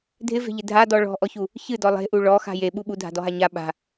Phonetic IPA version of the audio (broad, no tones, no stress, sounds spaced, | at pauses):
dʱ ɪ v e̤ ʎ ɪ dʱ a d ɔ ɭ ɔ̤ ʔ ɔ ç u | ç ɨ d ɔ lˠ e̤ ʔ u ɭ ɔ x a̤ j e ɓ u ɓ u dʱ a̤ d ɔ ɦ a ɲ a ɓ a̤